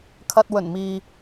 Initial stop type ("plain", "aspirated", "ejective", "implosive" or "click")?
aspirated